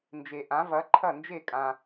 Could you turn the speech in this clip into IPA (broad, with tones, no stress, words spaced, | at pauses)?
nd͡ʒe˩ʔã˩˥ vɐ˩˥ ǃʰɐ˥˩nd͡ʒe˥˩kʼã˩